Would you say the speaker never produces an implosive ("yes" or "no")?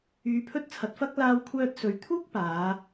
yes